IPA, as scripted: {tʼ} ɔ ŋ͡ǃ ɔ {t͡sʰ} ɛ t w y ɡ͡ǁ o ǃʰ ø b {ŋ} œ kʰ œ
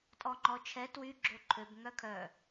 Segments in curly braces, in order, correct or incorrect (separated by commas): correct, incorrect, correct